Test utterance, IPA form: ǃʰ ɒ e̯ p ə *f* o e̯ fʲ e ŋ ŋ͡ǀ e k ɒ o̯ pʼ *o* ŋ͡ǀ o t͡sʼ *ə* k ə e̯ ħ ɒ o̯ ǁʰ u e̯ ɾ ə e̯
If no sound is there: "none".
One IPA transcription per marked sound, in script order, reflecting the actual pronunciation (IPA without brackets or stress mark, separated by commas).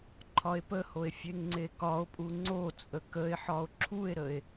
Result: h, u, ə